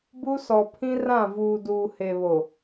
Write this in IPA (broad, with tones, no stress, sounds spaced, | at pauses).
b u˦ s ɔ˨ pʰ ĩ˦ r ã˦˨ v uː˨ d uː˨ h e˨ β o˨